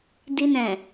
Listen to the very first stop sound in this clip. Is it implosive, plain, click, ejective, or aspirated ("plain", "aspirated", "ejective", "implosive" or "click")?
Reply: plain